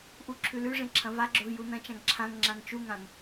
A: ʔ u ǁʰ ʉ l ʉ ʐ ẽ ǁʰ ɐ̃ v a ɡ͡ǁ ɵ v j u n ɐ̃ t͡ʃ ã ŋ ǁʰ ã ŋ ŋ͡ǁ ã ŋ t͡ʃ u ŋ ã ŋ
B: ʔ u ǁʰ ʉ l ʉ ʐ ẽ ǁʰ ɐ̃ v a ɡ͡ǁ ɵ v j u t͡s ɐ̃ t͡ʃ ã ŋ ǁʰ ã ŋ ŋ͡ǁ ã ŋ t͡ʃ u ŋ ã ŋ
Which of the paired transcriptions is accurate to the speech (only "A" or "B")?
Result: A